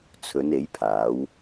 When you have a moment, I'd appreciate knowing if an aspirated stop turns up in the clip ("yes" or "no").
yes